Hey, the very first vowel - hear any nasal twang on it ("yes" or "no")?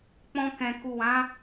yes